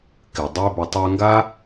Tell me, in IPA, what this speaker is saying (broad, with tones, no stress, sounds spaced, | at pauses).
k ɪ˨ dˤ e˧ b ʏ˨ tˤ ø˧ ŋ ɡ a˦